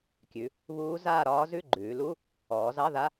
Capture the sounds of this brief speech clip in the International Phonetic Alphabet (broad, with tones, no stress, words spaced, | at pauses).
kʲʉ˩˧ | βuː˦˥zaː˥˧ɾɒː˦˥zʉ˥˧ ɡ͡ǃʉː˩˧lu˧˥˧ | ɔː˩˧zɑ˧˥˧ða˧˥˧